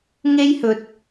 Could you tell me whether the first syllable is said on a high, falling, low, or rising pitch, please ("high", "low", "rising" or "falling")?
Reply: high